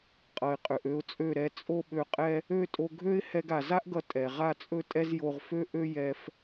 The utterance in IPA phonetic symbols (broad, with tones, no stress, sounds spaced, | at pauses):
qʼ ʌ˨ ɪ̯ qʼ ø˨ ʔ ø˧ ʊ̯ t͡sʼ ø˦˨ ɾ ɛ˨ t͡sʼ o˦ ɓ ø˧ qʼ ɛ˦ | ø˦˨ tʼ o˧ ɡʱ ø˦ ɪ̯ h ɛ˧ ɡ a˨ z a˦ ʔ ɡ ʌ˧ tʼ ɛ˨ ʁ a˦˨ t͡sʼ ɵ˦ tʼ ɛ˦ z j o˧ ʁ f ø˦ ʔ ø˦ j ɛ˧ f